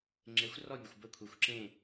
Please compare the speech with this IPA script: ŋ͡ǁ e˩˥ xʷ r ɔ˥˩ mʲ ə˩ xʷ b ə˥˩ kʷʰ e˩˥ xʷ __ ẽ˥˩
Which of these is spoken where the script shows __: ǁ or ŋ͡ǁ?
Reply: ǁ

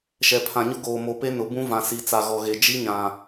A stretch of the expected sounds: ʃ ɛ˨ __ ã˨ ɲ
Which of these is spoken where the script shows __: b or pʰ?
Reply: pʰ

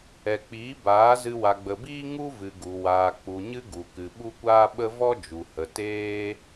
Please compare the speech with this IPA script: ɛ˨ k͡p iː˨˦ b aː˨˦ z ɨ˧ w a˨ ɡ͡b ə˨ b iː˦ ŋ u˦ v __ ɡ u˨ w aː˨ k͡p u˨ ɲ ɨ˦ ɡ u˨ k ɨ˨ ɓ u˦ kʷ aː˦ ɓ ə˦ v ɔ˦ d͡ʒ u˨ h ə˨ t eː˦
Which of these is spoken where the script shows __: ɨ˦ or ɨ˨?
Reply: ɨ˨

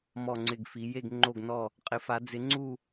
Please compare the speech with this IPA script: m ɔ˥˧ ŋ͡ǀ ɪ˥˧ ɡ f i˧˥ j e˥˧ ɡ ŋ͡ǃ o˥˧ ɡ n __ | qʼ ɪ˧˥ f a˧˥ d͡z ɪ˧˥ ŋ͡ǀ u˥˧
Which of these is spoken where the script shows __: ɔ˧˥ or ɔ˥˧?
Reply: ɔ˥˧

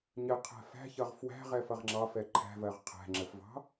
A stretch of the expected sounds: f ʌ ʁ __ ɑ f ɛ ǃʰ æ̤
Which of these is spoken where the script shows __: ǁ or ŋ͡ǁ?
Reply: ŋ͡ǁ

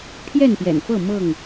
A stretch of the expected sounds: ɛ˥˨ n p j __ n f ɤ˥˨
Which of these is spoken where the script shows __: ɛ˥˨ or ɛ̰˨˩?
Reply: ɛ̰˨˩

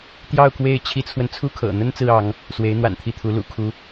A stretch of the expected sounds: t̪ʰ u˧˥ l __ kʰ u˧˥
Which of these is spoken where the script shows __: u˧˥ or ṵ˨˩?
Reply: ṵ˨˩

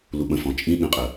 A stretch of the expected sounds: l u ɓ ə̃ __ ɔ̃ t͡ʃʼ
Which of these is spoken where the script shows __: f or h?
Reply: f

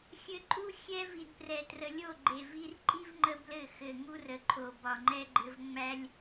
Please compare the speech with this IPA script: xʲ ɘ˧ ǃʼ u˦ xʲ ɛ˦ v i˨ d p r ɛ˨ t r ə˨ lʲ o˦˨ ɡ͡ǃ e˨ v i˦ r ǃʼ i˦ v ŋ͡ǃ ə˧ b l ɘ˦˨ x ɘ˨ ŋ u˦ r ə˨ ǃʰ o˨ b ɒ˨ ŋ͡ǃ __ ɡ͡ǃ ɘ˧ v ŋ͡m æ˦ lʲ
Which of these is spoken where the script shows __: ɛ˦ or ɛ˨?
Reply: ɛ˦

